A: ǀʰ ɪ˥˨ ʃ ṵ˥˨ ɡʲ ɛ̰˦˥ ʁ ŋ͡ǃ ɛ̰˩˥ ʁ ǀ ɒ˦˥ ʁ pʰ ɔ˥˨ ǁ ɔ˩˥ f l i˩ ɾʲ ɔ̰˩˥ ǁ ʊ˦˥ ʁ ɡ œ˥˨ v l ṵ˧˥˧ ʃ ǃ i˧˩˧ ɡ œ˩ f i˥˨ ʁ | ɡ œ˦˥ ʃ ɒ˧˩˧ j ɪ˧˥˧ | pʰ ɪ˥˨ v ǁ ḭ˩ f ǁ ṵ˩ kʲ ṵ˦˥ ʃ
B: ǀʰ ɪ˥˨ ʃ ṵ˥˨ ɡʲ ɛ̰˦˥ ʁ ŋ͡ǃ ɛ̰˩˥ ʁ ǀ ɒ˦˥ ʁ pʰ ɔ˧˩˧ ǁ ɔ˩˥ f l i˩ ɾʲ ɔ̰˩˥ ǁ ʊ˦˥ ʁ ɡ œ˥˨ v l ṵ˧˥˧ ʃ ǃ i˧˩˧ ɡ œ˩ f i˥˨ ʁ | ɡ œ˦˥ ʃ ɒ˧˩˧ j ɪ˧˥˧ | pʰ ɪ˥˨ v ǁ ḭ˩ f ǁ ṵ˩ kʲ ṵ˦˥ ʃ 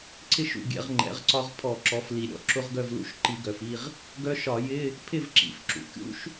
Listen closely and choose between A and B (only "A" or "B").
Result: B